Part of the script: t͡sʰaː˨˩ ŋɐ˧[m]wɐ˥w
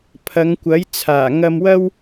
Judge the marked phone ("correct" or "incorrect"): correct